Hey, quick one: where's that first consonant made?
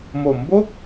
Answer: lips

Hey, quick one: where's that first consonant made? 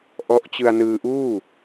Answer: throat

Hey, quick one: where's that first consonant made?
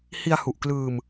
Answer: throat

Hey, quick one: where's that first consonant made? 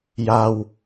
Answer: palate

